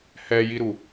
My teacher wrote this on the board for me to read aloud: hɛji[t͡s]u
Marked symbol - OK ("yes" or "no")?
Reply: no